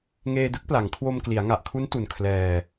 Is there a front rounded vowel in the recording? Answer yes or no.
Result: no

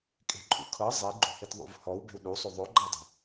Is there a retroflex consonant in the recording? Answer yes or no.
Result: no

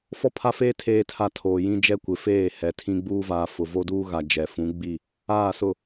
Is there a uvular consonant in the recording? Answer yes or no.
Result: no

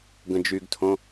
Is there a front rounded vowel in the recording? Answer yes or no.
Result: yes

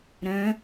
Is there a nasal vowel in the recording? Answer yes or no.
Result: yes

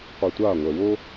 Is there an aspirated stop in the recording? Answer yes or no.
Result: no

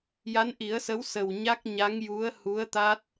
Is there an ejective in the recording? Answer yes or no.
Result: no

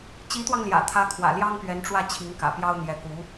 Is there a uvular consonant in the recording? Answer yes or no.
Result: no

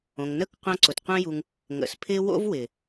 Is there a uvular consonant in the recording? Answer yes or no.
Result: yes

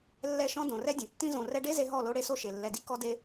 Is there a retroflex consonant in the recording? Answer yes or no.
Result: yes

